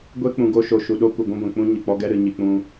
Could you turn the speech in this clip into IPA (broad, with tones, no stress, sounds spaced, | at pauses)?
ɡʷ e˦ k͡p ũ˨ ɡ o˧ ʃ o˨ ʃ u˨ ɗ o˦ kʷ ɨ˨ ɡʷ ũ˦ ɡʷ ɛ̃˨ k͡p ũ˦ ɲ ɨ˨ k͡p ɔ˦ ɡ ɛ˦ ɾ ɨ˨ ɲ i˨ k͡p ũ˧